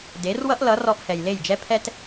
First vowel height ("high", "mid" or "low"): mid